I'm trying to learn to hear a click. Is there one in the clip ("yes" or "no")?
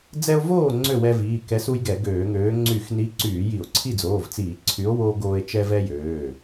yes